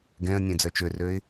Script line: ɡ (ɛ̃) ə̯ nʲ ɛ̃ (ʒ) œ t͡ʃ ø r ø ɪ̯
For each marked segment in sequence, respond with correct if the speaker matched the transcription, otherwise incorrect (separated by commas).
correct, incorrect